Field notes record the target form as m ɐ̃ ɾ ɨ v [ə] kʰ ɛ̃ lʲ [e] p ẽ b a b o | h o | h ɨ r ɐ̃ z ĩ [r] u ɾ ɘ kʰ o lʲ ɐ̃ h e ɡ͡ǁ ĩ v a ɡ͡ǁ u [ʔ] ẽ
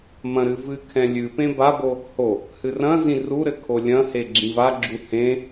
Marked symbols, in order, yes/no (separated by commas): no, no, yes, no